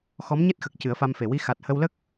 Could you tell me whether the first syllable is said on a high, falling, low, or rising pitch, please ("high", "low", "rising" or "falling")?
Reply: rising